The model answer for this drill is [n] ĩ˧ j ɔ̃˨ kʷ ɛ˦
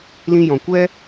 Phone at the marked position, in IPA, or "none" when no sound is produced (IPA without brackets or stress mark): l